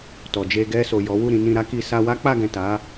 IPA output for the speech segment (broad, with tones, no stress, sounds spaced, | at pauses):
t ɔ˨ d͡ʒ e˧ ɡ ɛ˧ s o˨ j ɔ˨˦ w u˦˨ ɾ ĩ˧ n ĩ˧ ɾ a˦ k i˧ s a˧ w a˦ k͡p a˦˨ ɡ ɛ̃˨ t a˨˦